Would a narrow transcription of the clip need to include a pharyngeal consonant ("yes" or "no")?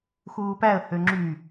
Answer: no